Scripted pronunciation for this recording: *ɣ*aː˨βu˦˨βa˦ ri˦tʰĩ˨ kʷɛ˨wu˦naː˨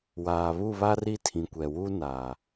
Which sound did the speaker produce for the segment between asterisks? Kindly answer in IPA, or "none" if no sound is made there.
w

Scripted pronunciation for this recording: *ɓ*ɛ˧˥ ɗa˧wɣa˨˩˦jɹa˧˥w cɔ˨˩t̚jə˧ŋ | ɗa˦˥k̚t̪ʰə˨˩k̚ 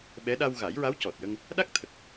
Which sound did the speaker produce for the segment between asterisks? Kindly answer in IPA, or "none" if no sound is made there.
ɓ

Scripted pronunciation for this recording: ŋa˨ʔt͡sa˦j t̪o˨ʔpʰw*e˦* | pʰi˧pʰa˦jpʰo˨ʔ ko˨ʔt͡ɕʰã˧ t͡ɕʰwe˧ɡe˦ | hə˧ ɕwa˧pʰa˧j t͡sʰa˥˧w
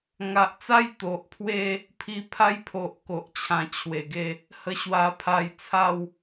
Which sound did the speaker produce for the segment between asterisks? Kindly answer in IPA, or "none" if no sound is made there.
e˦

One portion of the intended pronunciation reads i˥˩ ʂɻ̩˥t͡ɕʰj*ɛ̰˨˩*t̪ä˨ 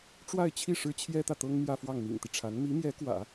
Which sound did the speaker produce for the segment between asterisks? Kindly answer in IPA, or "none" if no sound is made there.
ɛ˥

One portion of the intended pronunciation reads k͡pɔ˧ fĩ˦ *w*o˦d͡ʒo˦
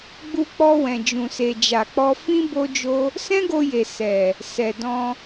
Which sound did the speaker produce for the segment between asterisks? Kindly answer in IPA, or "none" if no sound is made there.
b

